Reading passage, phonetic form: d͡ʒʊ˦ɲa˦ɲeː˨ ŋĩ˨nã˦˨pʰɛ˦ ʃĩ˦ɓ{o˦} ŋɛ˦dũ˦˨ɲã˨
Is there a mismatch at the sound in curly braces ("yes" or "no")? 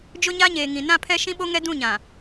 no